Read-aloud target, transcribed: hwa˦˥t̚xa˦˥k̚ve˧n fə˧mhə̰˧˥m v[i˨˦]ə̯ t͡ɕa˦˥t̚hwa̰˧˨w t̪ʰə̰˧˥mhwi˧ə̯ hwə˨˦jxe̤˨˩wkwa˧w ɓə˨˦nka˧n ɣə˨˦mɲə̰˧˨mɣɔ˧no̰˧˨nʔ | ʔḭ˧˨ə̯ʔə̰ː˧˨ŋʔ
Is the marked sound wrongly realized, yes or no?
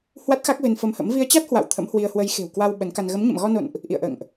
yes